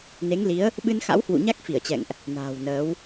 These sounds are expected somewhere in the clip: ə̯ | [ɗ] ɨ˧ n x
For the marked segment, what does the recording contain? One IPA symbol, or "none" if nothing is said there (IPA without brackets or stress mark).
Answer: ɓ